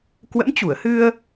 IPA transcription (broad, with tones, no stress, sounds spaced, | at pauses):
k w ə̰˧˥ m t͡ɕ u˧˩ ə̯ h ɨ˧ ə̯